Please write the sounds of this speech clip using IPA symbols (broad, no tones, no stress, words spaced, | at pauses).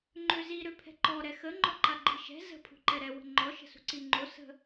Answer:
ŋ͡ǃøzi ɾøpʰɛ̤ǃɔ ɾɛxə ŋ͡ǃɔǃaɡ͡ǃiʃɛ̤ zə̤ pʰṳǃɛɾɛ wə̤ŋ͡ǃɔ ʃə̤sṳǀiŋ͡ǃo sə̤